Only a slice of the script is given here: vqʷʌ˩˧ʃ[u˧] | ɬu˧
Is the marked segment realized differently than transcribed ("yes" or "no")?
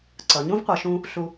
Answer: yes